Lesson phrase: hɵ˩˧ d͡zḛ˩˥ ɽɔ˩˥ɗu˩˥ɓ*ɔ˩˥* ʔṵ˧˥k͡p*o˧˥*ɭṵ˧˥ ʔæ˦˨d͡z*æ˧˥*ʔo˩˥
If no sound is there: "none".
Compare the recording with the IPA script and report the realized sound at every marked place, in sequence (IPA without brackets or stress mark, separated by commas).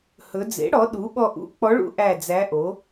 ɔ˦˨, ɔ˧˥, æ˧˥